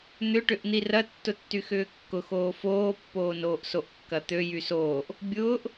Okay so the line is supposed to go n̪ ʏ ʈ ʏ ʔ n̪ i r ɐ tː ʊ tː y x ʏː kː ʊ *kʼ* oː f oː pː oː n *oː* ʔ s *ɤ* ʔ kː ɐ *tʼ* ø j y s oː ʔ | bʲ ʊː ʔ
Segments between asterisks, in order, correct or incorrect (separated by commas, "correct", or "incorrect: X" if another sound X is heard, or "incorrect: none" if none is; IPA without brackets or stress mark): incorrect: x, correct, incorrect: o, incorrect: t̪